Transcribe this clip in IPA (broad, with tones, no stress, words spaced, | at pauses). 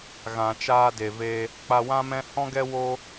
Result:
ɣã˨t͡ʃaː˧de˨ve˧ | k͡pa˧wã˦mɛ̃˦ hɔ̃˦ɡɛ˦ wo˦